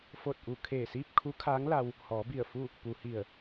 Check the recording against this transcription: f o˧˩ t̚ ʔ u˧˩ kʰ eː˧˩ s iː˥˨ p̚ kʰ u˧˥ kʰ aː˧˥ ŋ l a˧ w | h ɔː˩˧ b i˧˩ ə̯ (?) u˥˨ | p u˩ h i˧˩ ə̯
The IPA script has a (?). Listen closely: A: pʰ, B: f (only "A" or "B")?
B